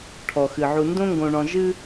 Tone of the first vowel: low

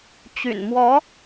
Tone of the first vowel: low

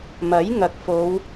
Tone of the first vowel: rising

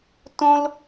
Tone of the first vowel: high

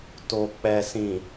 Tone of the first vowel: low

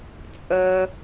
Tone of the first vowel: high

